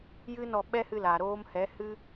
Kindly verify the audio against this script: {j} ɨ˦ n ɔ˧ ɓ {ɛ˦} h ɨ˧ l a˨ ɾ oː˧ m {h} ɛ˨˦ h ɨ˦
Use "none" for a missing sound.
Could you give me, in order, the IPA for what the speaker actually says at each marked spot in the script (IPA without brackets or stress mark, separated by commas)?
j, ɛ˦, h